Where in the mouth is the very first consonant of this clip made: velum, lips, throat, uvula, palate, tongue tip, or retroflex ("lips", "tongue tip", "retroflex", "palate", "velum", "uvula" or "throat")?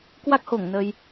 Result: velum